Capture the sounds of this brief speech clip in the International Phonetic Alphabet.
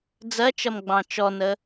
d͡zɜt͡ʃʌm ɡ͡bɑ̃t͡ʃɔnə

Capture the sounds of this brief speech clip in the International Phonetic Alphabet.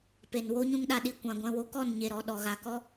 pe˨nwo˦ ɲũ˦ŋɗa˧ɗi˦˨ kʷã˧ ɡʷɛ̃˧wo˦ kɔ˦˨nɲe˨ɾɔ˨ ɗɔ˨ɣa˨kɔ˦

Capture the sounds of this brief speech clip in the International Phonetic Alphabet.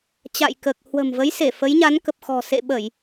t͡ɕa̰˧˨jkəː˨˩k̚ hwə̤˨˩mvə˨˦jse˧˩ fə˨˦jɲa˨˦nkə˨˩p̚xɔ̤˨˩ sḛ˧˨ɓə˧˩˨j

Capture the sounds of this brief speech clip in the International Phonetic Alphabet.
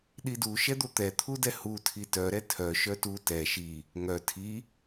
ɗidu ʃɛd̪ot̪ɛ t̪ʰudɛhu tʰitœ ɾɛtʰœ ʃœtu tɛ ʃi | ŋœ tʰi

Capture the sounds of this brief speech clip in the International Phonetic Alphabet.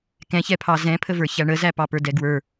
kɛ̃çɛpʰɑ zɛ̃pʰəvə˞ çæɳəzæ pɑpə˞dɛɡwə˞

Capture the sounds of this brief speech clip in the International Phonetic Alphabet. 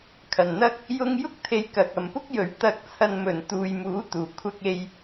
kʰɐ˨˩nn̪ɐ˥k̚ | jʊ˧ŋjʊ˥k̚ t̪ʰe˧jkɐ˨k̚ɐ˨˧m pʊ˥k̚jɵ˨ɥ t̪ɐ˨˥k̚t͡sʰɐ˨nmɵ˨˩n t̪uː˨jmuː˨˥t̪uː˨˩ kʷʰɐ˥k̚e˥j

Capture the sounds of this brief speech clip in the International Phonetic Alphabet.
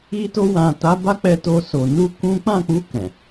i˧to˧wã˨ta˨˦ ba˦k͡pɛ˧to˧so˨ nu˧ kũ˦ k͡pã˦˨k͡pu˧ kɛ̃˨

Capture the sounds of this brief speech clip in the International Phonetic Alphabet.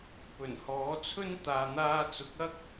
pɵ˨˩nhɔː˨˥t͡sʰɵ˥n t̪aː˨n̪aː˧t͡sʊ˨˥k̚ɐ˥k̚

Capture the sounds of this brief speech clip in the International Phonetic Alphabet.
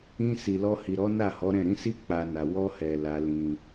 ĩ˧ si˨lɔ˧hi˨ ɾɔ˨˦ na˦˨hɔ˨˦ɾɛ̃˦˨ ɾĩ˨˦si˦ k͡pa˧na˨ wɔ˧hɛ˨ la˧lĩ˧

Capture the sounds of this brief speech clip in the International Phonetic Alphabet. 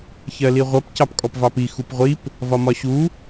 çɜliʁʷʌp cɑpkʼɔpvɑpi xupʁʷip | vɒmɒɕu

